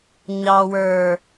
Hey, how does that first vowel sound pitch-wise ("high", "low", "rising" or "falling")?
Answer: low